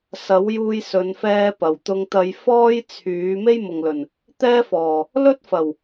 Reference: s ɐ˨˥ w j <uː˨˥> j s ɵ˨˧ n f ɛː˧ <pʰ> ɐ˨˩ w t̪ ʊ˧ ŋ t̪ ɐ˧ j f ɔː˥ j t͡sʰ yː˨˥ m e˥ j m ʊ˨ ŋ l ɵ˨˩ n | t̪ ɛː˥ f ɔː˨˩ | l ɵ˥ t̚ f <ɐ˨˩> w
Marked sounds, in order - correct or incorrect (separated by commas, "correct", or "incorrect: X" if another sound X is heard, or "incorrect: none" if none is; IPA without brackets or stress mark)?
incorrect: uː˧, incorrect: p, correct